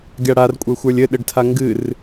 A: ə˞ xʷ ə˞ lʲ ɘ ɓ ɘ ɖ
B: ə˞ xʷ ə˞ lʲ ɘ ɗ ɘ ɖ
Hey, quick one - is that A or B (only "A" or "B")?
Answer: B